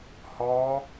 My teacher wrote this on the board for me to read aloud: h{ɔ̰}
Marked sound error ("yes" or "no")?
yes